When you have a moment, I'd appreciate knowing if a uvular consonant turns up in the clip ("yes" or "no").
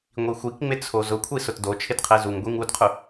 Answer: yes